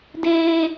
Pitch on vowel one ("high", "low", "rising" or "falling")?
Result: high